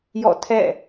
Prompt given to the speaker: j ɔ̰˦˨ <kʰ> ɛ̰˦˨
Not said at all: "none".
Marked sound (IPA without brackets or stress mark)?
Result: tʰ